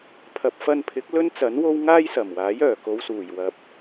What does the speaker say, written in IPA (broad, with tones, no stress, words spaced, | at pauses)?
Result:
pʰɐ˨p̚fɐ˧npʰɪ˨˥k̚ lɵ˥nt͡sɐ˨˥nwo˥w ŋaː˥jsɐ˨˩mwaː˨˥j œː˨˩ko˨˧wsuː˨˩j wɐ˧p̚